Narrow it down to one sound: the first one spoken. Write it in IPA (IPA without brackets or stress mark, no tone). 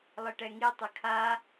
lˠ